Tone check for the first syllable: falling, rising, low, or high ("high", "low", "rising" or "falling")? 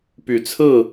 rising